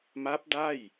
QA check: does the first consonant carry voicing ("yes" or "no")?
yes